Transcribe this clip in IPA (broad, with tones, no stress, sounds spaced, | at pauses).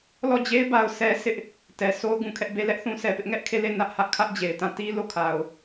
l ɔ˦˨ d͡ʑ e˦ ɪ̯ b a˦ ʊ̯ sʰ ɛ˦ s ɪ˦ ʔ | t ɛ˨ s o˦ ʊ̯ ɡ ũ˨ kʰ ɛ˦ ʔ b e˦ l ɛ˦ ʔ θ ũ˦ sʰ ɛ˨ p ɪ˦ ʔ ŋ ɛ˦ ʔ kʰ e˦˨ l e˦˨ n ä˦ ʔ h ä˦ ʔ kʰ ä˦ ʔ d͡ʑ e˨ ɪ̯ t ã˦˨ t i˦ l o˦˨ kʰ a˨ ʊ̯